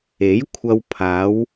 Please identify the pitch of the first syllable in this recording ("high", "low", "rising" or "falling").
rising